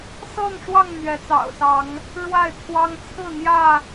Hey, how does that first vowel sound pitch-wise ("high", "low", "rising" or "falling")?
falling